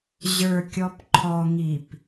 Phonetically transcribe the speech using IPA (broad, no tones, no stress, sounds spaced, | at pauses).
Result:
ʑ ə˞ kʲ ɔ p ǃʰ ɔ ŋ i p